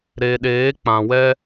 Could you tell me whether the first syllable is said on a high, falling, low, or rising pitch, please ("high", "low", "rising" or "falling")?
low